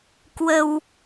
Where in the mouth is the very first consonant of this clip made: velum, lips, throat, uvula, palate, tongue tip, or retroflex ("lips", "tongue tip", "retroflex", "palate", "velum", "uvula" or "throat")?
velum